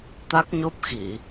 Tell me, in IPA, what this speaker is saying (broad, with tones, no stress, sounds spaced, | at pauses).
t̪ a˦˥ k̚ ɲ o˦˥ p̚ x i˧˩˨